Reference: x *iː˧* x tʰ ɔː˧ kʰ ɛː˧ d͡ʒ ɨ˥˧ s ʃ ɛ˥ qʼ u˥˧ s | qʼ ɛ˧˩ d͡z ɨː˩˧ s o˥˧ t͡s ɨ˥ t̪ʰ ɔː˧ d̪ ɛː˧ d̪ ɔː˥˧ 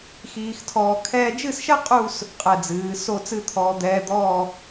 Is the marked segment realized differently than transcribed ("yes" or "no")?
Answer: no